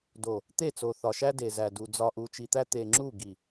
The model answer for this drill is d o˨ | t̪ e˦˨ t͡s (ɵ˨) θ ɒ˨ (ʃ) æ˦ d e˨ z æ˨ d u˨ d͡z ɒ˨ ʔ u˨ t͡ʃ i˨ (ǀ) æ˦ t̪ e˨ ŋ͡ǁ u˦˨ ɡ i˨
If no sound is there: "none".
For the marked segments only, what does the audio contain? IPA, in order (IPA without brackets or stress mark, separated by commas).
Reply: o˨, ʃ, t̪